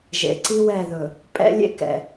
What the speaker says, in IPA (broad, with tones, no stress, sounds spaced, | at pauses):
ʒ ḛ˨ ǀ i˦ w ɛ˦˨ ð ɵ˨ | pʼ ɛ̰˦ lʲ ḛ˦ k ɛ̰˨